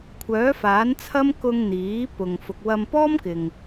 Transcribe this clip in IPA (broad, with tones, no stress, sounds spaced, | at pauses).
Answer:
kʷʰ œː˨˥ f aː˨˥ n t͡sʰ ɐ˥ m k ʊ˧ ŋ n̪ iː˨˥ p ʊ˨ ŋ f ʊ˨ k̚ w ɐ˧ m p ɔː˥ m k ɪ˨ ŋ